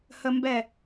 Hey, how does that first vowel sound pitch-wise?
high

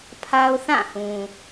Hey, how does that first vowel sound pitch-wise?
high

